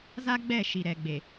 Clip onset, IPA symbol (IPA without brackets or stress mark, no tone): z